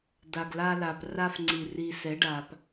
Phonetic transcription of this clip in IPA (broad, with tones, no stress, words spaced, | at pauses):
d̪a˨ɡla˦la˨p ra˦fŋ͡ǀi˨ ri˦ sɛ˨˦ɖa˨p